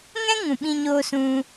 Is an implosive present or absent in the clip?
present